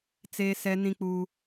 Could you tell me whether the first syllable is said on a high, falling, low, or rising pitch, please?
high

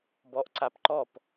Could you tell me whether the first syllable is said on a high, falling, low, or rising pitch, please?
rising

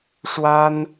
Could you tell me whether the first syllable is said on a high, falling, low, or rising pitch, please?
high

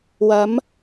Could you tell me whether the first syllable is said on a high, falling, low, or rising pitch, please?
rising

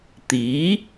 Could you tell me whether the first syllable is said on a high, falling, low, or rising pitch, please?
rising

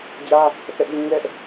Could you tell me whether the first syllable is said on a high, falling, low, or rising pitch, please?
high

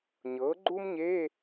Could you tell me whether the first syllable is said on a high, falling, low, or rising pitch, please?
rising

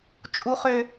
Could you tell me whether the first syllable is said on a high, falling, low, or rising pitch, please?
high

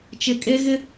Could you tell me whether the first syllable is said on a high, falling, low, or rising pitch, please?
high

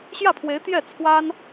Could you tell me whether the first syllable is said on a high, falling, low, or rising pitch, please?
falling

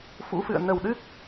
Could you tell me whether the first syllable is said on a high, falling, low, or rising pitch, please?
rising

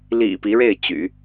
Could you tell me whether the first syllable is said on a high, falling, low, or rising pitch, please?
low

